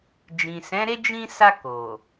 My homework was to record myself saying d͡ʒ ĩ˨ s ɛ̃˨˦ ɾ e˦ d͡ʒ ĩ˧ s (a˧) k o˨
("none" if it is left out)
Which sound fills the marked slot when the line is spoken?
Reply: a˧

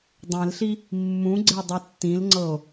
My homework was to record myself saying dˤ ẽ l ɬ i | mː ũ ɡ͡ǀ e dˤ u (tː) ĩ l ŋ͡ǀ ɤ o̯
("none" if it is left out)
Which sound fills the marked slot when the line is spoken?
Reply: tː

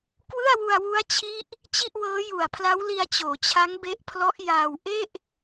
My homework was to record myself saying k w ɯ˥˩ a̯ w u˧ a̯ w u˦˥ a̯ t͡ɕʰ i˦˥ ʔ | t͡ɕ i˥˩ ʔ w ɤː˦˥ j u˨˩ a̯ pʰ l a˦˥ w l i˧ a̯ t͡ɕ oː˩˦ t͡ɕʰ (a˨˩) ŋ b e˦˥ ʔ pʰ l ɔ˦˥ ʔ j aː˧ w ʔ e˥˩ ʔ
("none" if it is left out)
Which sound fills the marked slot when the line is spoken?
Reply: a˦˥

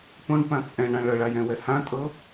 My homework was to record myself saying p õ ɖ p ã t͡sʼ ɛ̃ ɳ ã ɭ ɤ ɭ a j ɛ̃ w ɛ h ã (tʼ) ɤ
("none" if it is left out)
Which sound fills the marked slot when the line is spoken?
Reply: tʼ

